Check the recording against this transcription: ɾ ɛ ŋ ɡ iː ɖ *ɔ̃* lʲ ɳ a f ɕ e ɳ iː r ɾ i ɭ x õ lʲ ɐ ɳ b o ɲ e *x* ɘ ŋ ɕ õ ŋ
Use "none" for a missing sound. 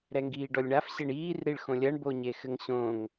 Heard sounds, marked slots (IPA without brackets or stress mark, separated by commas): ɔ, x